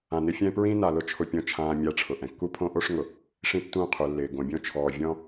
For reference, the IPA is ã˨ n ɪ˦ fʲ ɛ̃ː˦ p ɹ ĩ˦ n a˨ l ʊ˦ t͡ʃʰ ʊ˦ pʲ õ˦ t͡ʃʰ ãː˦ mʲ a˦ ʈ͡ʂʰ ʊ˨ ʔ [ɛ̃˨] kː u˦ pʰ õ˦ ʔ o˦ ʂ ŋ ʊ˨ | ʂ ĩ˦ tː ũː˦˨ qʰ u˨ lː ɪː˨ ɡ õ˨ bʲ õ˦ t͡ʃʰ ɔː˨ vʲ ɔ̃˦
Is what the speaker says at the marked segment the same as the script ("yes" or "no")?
yes